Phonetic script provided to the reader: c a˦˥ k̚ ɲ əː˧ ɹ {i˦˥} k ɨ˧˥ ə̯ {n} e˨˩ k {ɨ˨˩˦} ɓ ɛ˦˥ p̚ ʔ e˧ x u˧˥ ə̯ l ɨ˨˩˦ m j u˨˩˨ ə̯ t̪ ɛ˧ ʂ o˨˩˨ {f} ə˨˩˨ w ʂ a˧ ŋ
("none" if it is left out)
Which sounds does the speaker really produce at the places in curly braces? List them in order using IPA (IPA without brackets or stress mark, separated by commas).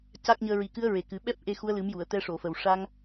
i˨˩, ɹ, ɨ˨˩˦, f